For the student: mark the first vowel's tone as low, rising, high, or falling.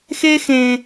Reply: high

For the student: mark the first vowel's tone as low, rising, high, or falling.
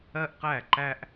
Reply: high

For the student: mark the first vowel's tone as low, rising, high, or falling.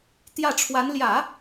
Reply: falling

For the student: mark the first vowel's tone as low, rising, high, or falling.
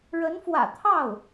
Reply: rising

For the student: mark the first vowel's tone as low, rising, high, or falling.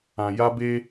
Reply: low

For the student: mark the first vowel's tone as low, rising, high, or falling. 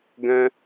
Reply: high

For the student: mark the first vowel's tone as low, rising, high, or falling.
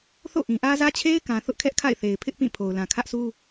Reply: falling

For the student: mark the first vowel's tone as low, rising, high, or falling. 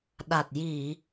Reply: low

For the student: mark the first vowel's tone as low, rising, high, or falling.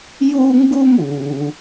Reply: high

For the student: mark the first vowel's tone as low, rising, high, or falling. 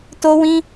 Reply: high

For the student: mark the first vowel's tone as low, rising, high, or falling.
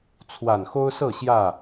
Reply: low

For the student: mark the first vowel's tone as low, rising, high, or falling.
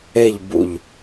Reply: falling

